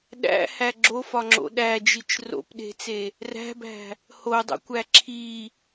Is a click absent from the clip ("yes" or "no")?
no